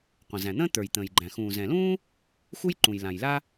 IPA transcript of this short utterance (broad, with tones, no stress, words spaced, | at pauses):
qʷə̃˩zæ̃˩n̪ə̃ː˥ t̪ə˞˩jt̪ə̃ː˩jɡ͡ǃæ̃˩ xũː˩zɛ̃˩lũː˥ | xu˥jǃũ˩jlã˩jla˥